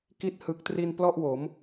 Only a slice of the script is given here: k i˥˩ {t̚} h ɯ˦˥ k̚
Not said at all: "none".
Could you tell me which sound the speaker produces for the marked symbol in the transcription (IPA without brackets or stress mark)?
t̚